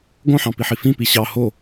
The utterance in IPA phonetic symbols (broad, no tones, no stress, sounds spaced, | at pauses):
ɡ õ ħ ɑ̃ p i ħ i f ĩ p i ɕ ɑ h o